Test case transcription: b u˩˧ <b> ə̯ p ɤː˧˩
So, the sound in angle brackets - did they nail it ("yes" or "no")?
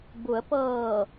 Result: no